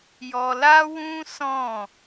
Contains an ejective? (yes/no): no